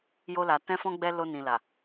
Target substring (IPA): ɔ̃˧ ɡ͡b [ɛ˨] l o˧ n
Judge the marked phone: incorrect: ɛ˧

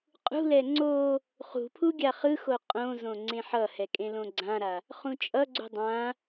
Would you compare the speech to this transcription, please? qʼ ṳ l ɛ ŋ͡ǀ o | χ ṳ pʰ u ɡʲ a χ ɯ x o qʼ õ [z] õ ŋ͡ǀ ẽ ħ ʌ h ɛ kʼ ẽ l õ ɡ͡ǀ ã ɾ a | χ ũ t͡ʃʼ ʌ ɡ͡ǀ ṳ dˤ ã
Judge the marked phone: correct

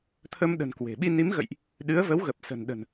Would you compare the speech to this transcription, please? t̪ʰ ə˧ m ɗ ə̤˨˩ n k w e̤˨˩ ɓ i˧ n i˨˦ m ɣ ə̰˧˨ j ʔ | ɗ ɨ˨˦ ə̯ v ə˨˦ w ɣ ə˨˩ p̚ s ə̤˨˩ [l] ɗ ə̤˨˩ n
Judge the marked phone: incorrect: n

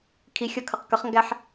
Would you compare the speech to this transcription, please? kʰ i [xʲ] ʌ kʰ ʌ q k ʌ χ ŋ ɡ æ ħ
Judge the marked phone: correct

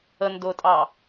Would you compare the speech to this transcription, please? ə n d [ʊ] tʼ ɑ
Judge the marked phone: correct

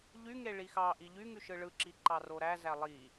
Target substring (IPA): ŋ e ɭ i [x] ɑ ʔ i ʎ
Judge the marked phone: correct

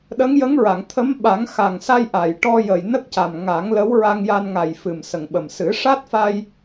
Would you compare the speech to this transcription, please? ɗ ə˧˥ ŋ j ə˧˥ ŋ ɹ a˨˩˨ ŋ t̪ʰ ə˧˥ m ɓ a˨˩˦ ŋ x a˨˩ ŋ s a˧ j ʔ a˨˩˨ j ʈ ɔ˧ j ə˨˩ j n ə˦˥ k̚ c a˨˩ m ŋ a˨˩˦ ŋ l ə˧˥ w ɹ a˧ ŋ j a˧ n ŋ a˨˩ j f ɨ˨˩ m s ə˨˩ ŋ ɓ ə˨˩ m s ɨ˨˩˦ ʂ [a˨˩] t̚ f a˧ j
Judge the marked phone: incorrect: a˦˥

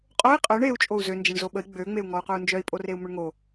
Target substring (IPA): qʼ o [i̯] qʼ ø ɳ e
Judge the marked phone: correct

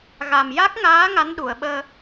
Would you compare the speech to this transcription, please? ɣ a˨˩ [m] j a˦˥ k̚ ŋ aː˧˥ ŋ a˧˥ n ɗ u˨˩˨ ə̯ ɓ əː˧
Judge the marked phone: correct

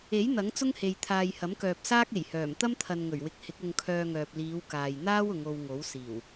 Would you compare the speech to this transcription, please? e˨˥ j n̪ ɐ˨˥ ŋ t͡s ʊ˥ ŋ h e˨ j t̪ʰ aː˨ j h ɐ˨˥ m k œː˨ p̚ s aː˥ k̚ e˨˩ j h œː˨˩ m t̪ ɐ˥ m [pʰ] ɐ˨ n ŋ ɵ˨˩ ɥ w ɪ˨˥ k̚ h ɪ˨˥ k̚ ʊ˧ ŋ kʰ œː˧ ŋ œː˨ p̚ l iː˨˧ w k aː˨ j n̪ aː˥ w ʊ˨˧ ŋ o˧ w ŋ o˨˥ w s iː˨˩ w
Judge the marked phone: incorrect: t̪ʰ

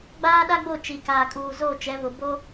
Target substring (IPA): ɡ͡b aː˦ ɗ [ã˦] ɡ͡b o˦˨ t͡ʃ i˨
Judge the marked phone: incorrect: a˦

